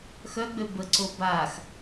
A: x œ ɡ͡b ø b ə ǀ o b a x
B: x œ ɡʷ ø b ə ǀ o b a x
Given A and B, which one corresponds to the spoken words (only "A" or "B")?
A